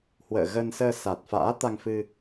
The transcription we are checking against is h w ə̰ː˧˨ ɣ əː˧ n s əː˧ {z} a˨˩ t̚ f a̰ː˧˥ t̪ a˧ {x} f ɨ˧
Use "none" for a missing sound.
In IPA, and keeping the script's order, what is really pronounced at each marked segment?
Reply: s, ŋ

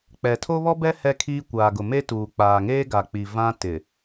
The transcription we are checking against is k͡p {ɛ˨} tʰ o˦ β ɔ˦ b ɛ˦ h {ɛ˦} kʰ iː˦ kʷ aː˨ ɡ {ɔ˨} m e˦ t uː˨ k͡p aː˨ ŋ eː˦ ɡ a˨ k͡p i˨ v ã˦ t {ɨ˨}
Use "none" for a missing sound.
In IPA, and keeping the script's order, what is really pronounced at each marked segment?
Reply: ɛ˨, ɛ˦, ʊ˨, ɪ˨

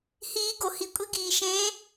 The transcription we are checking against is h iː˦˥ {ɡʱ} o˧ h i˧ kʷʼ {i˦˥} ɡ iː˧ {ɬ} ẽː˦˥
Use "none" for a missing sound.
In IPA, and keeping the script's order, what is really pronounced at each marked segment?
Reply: ɡ, i˦˥, ʃ

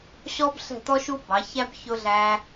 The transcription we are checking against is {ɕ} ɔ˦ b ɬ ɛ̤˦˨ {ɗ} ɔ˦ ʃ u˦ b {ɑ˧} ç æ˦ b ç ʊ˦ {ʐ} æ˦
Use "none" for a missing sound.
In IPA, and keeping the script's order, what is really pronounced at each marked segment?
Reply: ɕ, t̪, ɑ˨˦, ɮ

